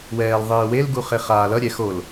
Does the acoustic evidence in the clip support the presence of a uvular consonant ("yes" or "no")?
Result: yes